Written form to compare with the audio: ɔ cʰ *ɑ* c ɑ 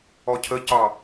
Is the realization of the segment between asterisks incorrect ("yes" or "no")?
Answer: yes